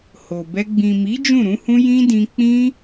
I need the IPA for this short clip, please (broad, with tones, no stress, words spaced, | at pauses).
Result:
ho˨bɛ˧ ɡ͡bĩ˨mi˨˦ d͡ʒũ˦˨ɾũ˨˦hũ˦ jĩ˦dĩ˧ k͡pĩ˦